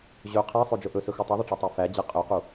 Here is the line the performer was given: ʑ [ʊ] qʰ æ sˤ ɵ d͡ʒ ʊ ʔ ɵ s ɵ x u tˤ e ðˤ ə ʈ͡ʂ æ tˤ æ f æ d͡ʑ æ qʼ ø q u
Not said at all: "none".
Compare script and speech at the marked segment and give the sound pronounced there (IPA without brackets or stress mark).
ɵ